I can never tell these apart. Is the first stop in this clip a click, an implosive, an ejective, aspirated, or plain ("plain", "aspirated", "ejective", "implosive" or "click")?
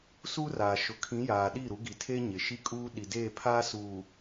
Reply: aspirated